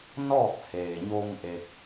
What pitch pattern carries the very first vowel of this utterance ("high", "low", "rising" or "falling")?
falling